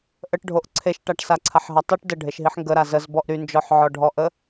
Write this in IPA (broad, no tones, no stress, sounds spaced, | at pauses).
ʔ ə ʈ ɖʱ o ʔ ǀʰ e ʃ ʈ a ʈ s a ǀʰ a ħ ɦ ɐ tˤ y ʈ d ə ɖʱ e ʃ ɦ i ħ ŋ ɡ ə ɾ a z ə z b ɔ ʔ ɾ y n d͡ʒ ɔ ħ ʕ ɔ ɖʱ ɔ ʔ ə